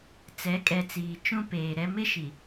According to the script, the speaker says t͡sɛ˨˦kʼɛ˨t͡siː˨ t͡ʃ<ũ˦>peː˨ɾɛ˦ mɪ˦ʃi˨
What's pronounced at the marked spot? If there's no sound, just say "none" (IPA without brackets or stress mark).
ũ˦